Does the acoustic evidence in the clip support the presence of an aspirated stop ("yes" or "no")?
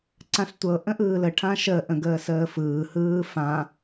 yes